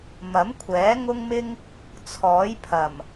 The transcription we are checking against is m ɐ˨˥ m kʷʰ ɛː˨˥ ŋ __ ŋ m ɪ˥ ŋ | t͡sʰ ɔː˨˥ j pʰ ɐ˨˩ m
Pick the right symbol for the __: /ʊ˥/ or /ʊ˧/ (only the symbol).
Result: ʊ˥